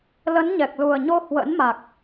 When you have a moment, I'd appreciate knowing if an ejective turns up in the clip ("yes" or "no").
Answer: no